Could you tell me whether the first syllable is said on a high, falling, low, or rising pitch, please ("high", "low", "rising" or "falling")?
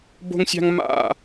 high